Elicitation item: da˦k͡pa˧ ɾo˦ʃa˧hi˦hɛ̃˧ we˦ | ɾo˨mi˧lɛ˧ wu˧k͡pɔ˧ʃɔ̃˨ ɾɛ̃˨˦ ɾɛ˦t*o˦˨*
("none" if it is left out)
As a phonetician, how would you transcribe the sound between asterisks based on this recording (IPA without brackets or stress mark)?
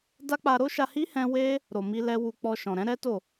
o˦˨